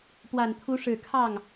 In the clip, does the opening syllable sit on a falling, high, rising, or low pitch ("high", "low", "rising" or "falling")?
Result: low